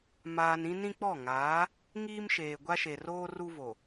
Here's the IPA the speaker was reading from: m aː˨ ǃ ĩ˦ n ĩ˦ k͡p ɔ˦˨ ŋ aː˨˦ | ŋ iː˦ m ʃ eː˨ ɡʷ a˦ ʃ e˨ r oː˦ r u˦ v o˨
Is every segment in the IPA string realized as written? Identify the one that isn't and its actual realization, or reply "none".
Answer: ǃ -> n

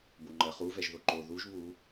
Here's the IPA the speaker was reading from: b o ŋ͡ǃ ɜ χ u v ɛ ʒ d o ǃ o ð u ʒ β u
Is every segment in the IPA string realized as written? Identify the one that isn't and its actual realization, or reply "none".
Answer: d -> ð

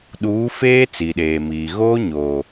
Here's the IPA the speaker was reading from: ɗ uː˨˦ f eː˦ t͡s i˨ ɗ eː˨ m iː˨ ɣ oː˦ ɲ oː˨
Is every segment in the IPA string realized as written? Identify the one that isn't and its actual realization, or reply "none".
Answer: none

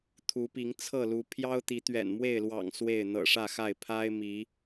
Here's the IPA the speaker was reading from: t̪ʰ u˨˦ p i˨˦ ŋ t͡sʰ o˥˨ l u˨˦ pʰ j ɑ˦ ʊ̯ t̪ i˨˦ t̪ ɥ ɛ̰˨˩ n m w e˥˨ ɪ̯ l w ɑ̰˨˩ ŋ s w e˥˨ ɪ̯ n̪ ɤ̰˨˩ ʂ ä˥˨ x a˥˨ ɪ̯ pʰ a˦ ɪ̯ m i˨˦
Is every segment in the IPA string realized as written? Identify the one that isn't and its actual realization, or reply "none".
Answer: o˥˨ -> ɤ˥˨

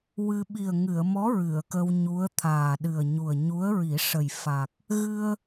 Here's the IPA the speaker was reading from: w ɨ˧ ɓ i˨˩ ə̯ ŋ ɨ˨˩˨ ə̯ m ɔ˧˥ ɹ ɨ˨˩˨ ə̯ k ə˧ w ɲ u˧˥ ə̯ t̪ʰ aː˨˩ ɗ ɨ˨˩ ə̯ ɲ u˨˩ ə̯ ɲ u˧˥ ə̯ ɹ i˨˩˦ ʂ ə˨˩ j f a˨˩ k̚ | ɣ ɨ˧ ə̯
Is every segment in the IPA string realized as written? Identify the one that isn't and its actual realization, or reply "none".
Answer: none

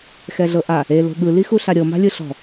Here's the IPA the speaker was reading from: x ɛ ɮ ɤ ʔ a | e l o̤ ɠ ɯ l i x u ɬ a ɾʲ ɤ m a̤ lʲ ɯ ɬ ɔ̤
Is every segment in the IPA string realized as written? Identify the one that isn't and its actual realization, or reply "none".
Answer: none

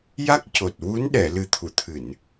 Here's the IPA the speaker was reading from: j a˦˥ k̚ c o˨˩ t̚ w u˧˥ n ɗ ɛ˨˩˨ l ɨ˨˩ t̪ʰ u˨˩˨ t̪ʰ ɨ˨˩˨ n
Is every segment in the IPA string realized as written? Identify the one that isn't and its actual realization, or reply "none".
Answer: none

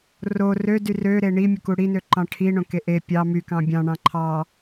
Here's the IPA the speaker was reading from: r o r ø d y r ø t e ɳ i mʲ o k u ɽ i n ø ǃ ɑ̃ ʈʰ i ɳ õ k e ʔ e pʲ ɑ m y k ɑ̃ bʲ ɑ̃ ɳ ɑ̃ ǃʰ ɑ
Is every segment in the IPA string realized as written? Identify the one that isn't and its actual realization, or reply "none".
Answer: t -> ɾ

